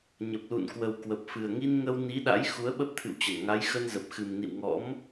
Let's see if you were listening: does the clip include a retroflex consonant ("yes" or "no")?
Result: no